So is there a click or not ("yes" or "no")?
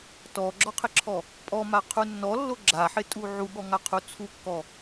yes